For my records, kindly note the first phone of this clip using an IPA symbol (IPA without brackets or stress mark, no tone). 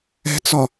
ɛ̤